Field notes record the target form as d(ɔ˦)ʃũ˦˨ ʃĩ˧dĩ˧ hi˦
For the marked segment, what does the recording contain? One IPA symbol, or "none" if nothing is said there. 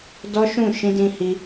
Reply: ɔ˦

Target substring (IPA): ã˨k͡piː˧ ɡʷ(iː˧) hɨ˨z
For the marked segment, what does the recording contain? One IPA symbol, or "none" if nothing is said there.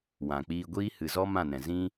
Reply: iː˦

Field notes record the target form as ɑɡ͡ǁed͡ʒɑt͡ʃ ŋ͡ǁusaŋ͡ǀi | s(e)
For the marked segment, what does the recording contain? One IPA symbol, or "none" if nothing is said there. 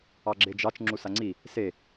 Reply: e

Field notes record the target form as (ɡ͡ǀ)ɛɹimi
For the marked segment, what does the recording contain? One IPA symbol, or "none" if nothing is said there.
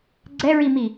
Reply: ɡ͡ǀ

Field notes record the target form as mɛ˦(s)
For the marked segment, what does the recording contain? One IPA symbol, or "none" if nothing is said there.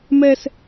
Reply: s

